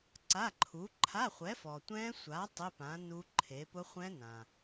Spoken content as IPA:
ǀ a˧˥˧ ǃʰ u˨˥ ǃʰ a˧˥˧ χʷ ɛ˨˥ f ɔ˨ tʷ ɛ̃˦˥ sʷ a˨˥ tˤ ɪ˧˥˧ p ã˨˥ n u˦˥ ǃʰ e˨˥ p ʊ˦˥ χʷ ɛ̃˦˥ n ã˨

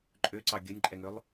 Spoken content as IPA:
ǃʼ ø ǀ ɑ ɡʲ ɵ nʲ ǃʼ ɛ ŋ ø lˠ

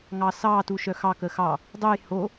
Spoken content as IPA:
ŋ ɑ s ɑ t u ʃ œ x ɑ k ə x ɑ | dˤ u j h o

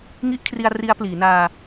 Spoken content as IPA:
ŋ i˦˥ ʔ kʰ r i˧ a̯ r i˦˥ a̯ p l iː˩˦ n aː˧

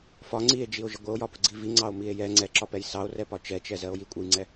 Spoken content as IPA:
f ɒ ŋ͡ǀ i e̯ d͡ʒ i o̯ ʒ ə ɡʷ ə o̯ j ɒ p ʊ ɡ͡ǀ i v i ŋ͡ǀ ɑ o̯ m i e̯ j ɛ ŋ͡ǀ ɛ ǁ ɒ p ɛ j s ɑ o̯ r ɛ p ɒ t͡ʃ ɛ t͡ʃ ɛ z ɜ o̯ j i kʷʼ ə j ŋ͡ǀ ɛ

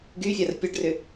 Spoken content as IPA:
ɡ y fʲ a r pʲ a ɖ r ʏ

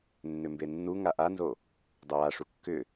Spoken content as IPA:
nː ʏ m b e nː u ŋ a ʔ a n z o | dˤ o w a ʂ u kː ʏ

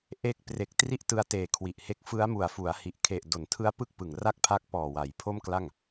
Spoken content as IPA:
ʔ e˦˥ k̚ p r e˨˩ k̚ t r i˥˩ ʔ t ɯ˦˥ a̯ t eː˨˩ kʰ w i˨˩ ʔ h e˦˥ k̚ f ɯ˦˥ a̯ m u˨˩ a̯ f u˩˦ a̯ h i˨˩ ʔ kʰ e˨˩ ʔ d o˩˦ n tʰ ɯ˦˥ a̯ p ɯ˥˩ k̚ p ɯ˨˩ ŋ r a˥˩ k̚ pʰ a˦˥ k̚ p ɔː˨˩ w a˩˦ j pʰ o˥˩ m k l a˥˩ ŋ

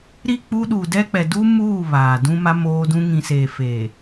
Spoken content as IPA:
ɾ i˦˨ k͡p u˦ ɗ u˨ d ɛ˦ k͡p ɛ˨ d u˦ m uː˦˨ β aː˨ d ũ˦ m a˦ m oː˦ d ũ˦ ŋ ĩ˨ s eː˨ f eː˨

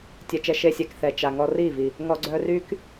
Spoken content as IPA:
tʲ ɛ˨ t͡ʃ ɛ˧ ʃ e˧ sʲ ɛ˨ k θ ɛ˨ t͡ʃ a˨ ŋ ɔ˧ r i˦˨ v i˨ | ŋ ɔ˨ ɡ͡ǀ œ˧ r y˦ k

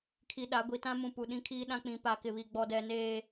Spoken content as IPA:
kʰ i˨ ɗ a˨˦ ɡʷ i˨ t ã˦ m ũ˨ p u˨ ɗ ĩ˦ kʰ iː˦ ɗ ã˦ k͡p ĩ˨˦ p a˨ k ɪ˨ β i˨ ɡ͡b ɔ˨ d ɛ˨ n eː˨

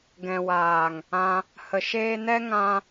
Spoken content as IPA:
ɡ ɛ̃˨ w aː˨ ŋ | ã˧ | h ə˨ ʃ eː˧ n ɛ˦ ŋ ã˦

